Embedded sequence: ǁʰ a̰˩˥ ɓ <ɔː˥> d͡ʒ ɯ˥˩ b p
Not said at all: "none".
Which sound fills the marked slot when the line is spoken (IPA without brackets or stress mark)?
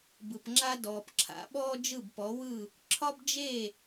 ɔː˥